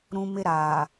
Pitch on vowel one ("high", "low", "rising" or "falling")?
high